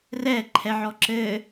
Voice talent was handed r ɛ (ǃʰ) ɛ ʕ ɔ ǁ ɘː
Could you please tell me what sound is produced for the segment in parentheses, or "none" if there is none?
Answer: ǃʰ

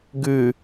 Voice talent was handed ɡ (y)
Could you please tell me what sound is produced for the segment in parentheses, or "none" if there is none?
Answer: y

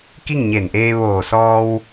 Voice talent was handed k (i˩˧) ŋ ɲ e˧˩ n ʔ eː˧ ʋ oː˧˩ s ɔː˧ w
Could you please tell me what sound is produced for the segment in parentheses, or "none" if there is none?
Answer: i˥˨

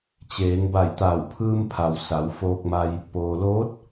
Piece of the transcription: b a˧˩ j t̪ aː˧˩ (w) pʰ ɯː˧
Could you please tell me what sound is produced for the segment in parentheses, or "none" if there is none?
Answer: w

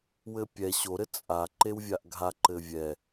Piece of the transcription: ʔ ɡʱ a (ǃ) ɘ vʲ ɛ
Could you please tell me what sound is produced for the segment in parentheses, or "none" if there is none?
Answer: ǃ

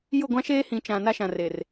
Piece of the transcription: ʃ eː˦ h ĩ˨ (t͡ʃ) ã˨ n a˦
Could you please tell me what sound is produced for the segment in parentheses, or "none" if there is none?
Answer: t͡ʃ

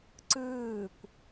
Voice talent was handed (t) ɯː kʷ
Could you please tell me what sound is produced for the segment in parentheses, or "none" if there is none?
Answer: ǀ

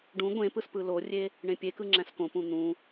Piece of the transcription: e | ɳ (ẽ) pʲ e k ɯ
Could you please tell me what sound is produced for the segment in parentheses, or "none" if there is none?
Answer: ẽ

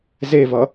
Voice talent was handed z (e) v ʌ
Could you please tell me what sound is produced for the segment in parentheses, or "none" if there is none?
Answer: e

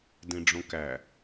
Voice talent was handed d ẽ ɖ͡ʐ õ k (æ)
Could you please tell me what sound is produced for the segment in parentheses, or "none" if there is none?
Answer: æ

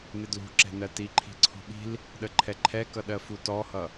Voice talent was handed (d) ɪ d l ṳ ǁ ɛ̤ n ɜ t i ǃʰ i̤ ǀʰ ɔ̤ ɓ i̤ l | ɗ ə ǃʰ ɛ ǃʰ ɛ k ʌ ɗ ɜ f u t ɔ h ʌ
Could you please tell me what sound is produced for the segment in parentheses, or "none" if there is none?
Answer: n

